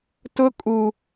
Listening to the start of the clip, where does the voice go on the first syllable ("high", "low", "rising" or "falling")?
high